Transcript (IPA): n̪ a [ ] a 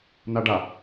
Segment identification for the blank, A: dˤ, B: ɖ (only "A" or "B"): B